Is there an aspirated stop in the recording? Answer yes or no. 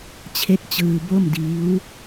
yes